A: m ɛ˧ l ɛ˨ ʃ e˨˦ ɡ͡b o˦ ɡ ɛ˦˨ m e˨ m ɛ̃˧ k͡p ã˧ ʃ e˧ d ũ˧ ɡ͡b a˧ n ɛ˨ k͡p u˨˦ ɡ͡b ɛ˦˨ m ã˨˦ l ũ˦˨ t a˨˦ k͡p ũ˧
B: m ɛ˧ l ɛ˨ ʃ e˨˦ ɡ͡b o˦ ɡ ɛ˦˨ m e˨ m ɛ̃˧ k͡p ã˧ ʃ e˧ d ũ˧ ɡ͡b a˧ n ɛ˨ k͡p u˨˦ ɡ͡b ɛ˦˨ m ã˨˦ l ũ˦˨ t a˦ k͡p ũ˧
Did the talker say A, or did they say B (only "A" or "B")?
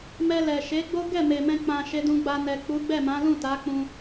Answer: A